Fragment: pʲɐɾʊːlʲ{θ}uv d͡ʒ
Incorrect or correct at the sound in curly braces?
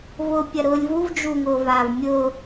incorrect: v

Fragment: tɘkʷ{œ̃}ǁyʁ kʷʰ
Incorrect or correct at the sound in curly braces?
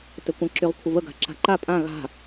incorrect: ə̃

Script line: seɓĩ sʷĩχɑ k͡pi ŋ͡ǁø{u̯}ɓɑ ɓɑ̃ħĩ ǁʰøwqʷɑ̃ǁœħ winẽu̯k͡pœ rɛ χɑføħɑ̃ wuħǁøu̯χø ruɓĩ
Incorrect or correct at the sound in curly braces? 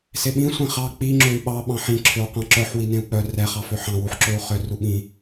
incorrect: y̯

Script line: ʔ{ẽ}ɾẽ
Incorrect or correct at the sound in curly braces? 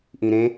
incorrect: ĩ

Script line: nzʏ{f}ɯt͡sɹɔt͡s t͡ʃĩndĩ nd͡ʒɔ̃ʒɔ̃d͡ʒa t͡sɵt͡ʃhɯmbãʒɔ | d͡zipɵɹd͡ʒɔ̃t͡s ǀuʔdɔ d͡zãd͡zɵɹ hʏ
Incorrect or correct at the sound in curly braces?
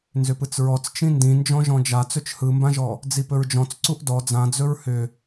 incorrect: p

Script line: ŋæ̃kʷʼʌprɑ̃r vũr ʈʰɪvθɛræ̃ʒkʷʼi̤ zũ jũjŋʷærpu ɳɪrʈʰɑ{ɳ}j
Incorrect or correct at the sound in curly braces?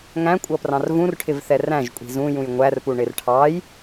incorrect: none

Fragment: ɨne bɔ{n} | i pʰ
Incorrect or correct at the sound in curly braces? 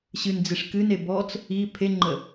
incorrect: t͡s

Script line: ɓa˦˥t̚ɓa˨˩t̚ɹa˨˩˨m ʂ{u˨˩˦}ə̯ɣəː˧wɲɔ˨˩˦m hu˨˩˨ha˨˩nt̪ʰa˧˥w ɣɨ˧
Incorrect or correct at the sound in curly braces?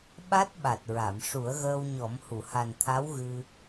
correct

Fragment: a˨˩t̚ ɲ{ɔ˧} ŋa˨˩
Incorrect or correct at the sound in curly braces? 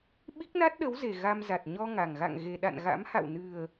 correct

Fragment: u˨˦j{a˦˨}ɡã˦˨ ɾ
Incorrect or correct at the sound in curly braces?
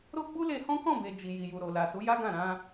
incorrect: a˦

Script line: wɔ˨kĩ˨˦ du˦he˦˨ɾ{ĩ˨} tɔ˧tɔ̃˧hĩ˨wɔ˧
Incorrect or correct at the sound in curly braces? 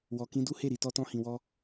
incorrect: i˨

